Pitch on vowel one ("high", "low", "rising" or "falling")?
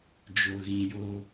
low